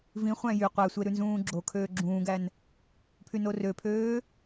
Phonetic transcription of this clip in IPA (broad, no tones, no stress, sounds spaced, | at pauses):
v ĩ χʷ æ̃ j y qʷ æ sʷ e ɾ ʉ n z ũː ɡ͡ǁ o kʰ øː ɡ͡ǁ ũː ɡ æ n | pʰ y n o r ø pʰ øː